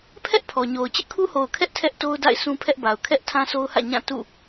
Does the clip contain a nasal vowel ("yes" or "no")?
yes